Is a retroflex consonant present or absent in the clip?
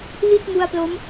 absent